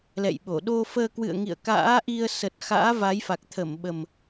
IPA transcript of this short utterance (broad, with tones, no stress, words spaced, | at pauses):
lɛ̰˧˨jɓo˧˩ɗo˧fəː˧ kwɨ̰˧˨ə̯ŋḭ˧˨ə̯ ka̰ː˧˥ʔi˧ə̯sə˨˩t̚ xa̰ː˧˥va˨˦jfa˨˩k̚ t̪ʰə˧˩m ɓə˨˩m